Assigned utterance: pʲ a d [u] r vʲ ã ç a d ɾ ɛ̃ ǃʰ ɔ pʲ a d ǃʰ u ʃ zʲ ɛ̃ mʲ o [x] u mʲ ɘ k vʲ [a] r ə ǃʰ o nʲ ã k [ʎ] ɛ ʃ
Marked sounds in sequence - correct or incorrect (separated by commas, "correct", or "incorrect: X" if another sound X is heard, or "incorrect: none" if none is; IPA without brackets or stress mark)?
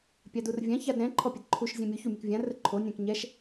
correct, incorrect: ç, incorrect: ã, incorrect: ɲ